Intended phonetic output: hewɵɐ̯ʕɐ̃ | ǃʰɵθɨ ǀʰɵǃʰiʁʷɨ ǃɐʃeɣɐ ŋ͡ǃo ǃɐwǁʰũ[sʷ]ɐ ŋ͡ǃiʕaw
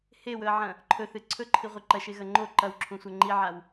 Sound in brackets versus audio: correct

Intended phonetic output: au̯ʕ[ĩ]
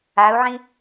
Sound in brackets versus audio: correct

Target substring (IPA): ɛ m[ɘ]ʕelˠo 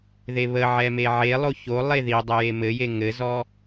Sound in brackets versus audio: incorrect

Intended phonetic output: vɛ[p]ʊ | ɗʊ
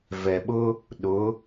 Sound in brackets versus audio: incorrect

